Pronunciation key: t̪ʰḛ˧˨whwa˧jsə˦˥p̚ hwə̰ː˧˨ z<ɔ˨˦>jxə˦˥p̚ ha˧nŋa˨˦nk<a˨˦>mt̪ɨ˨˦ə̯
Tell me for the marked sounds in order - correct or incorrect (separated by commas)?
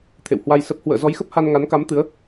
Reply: correct, correct